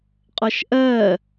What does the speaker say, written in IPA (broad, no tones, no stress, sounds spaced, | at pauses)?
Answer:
qʼ ɔ ʃ ʔ ɜ